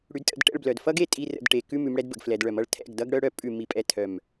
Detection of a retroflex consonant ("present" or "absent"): present